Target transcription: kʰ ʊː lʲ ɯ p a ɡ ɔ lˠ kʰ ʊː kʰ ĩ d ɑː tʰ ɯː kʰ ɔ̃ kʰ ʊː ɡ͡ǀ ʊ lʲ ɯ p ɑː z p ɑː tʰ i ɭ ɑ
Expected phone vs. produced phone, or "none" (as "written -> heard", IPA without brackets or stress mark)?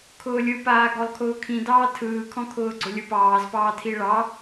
a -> aː